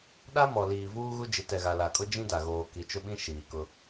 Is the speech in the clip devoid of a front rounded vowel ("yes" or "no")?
yes